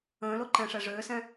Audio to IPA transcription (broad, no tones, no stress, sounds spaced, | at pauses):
ə̃ː l o ǃ ɛ̃ ʂ ɛ ʐ øː s ɛ̃